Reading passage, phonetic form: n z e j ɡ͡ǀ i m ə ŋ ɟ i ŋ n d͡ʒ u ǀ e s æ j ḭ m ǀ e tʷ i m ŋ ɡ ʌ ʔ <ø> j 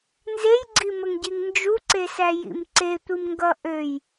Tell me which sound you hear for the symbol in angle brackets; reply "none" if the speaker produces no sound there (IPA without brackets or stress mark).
ø